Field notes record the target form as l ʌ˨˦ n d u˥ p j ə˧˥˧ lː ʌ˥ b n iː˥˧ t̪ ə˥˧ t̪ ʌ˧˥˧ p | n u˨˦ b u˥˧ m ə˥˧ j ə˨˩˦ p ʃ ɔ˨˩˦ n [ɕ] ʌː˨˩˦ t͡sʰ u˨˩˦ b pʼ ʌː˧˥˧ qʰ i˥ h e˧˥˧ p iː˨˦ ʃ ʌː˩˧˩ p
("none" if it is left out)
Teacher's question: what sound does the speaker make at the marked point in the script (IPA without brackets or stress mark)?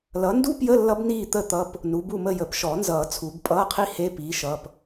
z